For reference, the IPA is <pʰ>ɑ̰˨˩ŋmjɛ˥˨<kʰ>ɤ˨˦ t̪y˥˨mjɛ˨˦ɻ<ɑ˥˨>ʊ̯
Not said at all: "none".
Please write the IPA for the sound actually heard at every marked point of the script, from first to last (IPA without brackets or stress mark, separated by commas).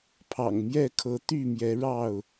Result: pʰ, kʰ, ɑ˥˨